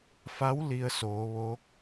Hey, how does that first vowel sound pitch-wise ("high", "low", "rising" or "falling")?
rising